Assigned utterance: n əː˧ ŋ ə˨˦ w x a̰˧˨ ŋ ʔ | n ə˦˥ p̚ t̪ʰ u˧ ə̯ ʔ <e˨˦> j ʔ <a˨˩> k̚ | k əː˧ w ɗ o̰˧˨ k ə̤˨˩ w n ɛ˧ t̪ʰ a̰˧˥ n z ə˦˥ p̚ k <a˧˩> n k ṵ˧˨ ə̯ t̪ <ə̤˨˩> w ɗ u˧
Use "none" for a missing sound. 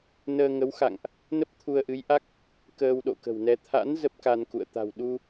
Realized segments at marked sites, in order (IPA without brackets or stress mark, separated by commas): ɨ˨˦, a˦˥, a˧, a̤˨˩